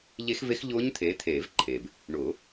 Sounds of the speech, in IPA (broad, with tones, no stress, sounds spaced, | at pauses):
ʎ e˦˥ x v e˦˥ x ʎ ʊː˦˥ ɲ t̪ʰ eː˨˦ t̪ʰ eː˨˩˦ v ǃʰ eː˩ b | ɳ ʊː˨˩˦